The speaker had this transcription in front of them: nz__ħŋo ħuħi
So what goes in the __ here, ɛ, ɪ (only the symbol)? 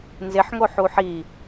ɪ